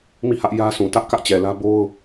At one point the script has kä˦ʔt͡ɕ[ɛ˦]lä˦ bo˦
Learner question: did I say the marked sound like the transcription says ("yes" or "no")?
no